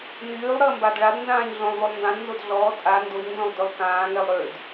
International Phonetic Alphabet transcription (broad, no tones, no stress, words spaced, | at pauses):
nyːlˠɾəː mbadɭadnzãːɲ ɮõlˠvolˠ ndãdnzod ɮɔː tʼa ndoɲnzõlˠ dølˠkãːŋɛlˠ ɾød